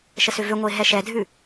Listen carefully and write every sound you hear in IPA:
ʃ ə s ʏ v ʏ ŋʷ ə ɪ̯ ɦ ɛ ʃ ɛ dʱ ʉ

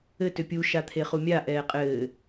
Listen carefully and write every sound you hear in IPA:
ɘ t ʏ pʲ u ʃ a t̪ʰ e χ u mʲ a ʔ ɛː qʼ ɘː

